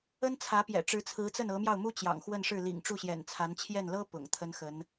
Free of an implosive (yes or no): yes